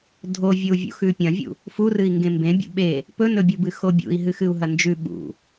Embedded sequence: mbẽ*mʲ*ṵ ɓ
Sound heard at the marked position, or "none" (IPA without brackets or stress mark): bʲ